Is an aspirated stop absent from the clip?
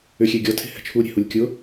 no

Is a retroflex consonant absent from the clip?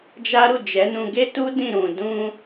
yes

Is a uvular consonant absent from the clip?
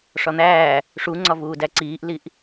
yes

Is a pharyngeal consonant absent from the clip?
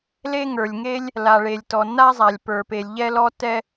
yes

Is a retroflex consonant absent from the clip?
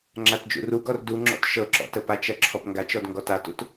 yes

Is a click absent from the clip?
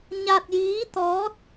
yes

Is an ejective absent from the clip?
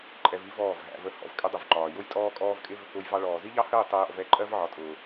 no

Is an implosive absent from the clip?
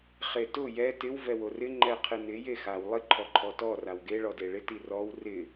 yes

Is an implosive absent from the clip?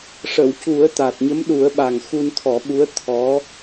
no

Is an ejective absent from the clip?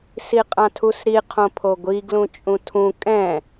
no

